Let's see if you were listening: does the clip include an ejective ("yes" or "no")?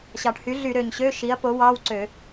no